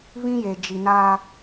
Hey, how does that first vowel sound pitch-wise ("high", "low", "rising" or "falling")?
high